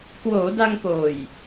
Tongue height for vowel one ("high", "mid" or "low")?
mid